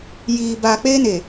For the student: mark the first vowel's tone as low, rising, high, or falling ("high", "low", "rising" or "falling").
low